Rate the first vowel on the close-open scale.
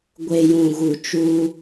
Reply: mid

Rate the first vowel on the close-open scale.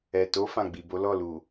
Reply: mid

